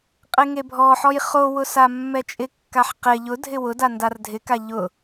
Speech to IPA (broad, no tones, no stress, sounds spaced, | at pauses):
qʼ ɪ ŋ e bʱ ɔ ħ ɔ j χ o w ʊ s a mː ɛ t͡ʃʼ ɪ kː a ħ q ɪ ʎ ʊ dʱ ɪ w ʊ d a n d a r dʱ ɪ k a ʎ ʊ